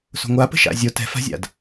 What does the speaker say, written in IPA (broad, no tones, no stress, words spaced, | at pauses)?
so̤ŋʷapə̤ ʃa̰zʲo tɛ̤fa̤zʲa̰d